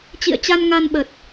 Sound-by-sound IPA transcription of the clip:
t͡ɕ ḭ˧˨ ə̯ t͡ɕ a˧ n ŋ a˧ n ɓ ə˨˩ t̚

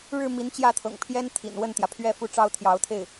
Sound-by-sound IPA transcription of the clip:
ɻ ɻ̩˥˩ m i˧˥ n t͡ɕ j ä˥˩ t̪ʰ ɤ̰˨˩ ŋ pʰ j ɛ˥ n t̪ʰ ḭ˨˩ n w ə˥˩ n t̪ j ä˩ pʰ ɥ ɛ˥˩ f u˥ ʈ͡ʂ ɑ˥ ʊ̯ t̪ʰ j ɑ˧˥ ʊ̯ t̪ʰ e˥˩ ɪ̯

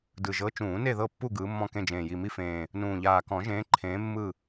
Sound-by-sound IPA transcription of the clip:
d ɯ˨˩ ʒ ɤ˨˦ t͡ʃ ũː˨˩˦ n e˦˨ ð ɤ˦˨ pː u˦˨ ɡ ɯː˨˦ mː ɔ̃˦˨ k ẽ˦˨ d͡ʒ ẽː˨˩ j i˨˩ m i˦˨ f ẽː˨˩ | n ũː˨˩ ʎ aː˨˩ k ɔ̃˨˩˦ ʒ ẽː˨˦ ǃʰ ẽː˨˦ mː ɯ˦˨

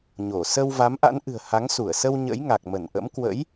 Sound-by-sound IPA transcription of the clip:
ɲ o˧˩ s ə˧ w v a˨˦ m ʔ a̰˧˥ n ʔ ɨ̤˨˩ ə̯ h a˨˦ ŋ s u˧˩ ə̯ s ə˧ w ɲ ə̰˧˥ j ŋ a˨˩ k̚ m ə˧˩ n ʔ ə̰˧˥ m k w ə̰˧˥ j

